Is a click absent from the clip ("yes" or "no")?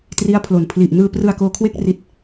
yes